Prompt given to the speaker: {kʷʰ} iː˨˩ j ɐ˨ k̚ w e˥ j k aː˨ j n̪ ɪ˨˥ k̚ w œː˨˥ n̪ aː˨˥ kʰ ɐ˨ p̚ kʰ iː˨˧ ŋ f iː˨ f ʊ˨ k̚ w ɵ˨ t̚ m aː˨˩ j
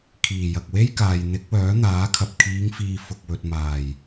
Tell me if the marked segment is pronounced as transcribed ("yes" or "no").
no